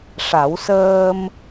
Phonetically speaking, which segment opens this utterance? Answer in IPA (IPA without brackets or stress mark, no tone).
ʂ